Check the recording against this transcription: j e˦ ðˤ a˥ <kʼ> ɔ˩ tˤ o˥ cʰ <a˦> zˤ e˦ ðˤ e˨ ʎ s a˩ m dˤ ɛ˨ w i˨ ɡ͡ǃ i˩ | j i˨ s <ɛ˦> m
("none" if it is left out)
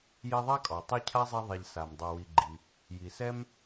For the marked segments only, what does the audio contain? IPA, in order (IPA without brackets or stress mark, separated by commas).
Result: kʼ, a˥, ɛ˥